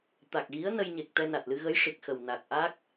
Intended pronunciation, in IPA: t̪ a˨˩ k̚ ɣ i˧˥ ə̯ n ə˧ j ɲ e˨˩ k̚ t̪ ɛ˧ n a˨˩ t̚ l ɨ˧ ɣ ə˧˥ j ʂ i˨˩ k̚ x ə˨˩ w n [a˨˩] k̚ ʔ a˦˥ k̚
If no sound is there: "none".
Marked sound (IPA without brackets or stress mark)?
a˨˩